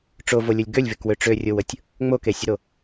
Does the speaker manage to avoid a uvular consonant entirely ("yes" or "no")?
yes